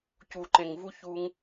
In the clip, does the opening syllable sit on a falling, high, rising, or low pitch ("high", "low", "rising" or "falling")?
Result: low